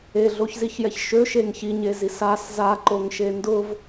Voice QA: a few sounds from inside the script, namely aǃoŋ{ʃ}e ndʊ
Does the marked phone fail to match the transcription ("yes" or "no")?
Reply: no